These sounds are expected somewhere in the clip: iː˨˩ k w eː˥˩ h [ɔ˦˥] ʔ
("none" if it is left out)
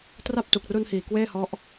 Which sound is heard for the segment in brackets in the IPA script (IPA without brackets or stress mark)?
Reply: ɔ˦˥